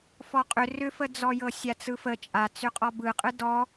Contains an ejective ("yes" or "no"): yes